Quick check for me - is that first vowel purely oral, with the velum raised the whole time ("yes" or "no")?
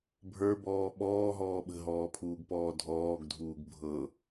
yes